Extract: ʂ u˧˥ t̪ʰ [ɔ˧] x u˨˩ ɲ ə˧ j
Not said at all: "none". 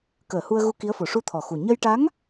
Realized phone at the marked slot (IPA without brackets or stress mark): ɔ˨˩